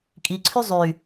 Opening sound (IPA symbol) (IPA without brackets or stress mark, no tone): kʼ